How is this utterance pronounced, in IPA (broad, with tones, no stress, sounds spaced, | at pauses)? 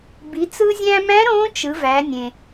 b i˩˧ t͡s ɯ˧ zʲ æ̃˧ m æ̃˧˥ ɾ õ˧˥ t͡ʃ ɯ˩˧ v æ˩˧ nʲ ẽ˩